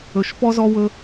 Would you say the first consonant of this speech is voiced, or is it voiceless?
voiceless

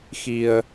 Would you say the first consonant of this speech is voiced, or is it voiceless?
voiceless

